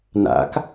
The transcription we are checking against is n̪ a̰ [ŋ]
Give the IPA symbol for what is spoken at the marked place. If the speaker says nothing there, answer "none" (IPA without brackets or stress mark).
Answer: k